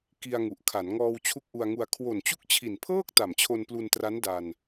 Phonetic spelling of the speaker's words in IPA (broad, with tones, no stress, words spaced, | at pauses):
ki˧a̯ŋu˨˩ʔkʰa˩˦n ŋɔː˧wt͡ɕʰu˦˥k̚ʔu˧a̯ŋu˧a̯ kʰwo˨˩nt͡ɕu˦˥k̚t͡ɕʰi˨˩npʰɤː˥˩k̚ ta˨˩mt͡ɕʰo˧nplu˧ntra˦˥n da˧n